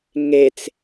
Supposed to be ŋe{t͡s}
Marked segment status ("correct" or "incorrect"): correct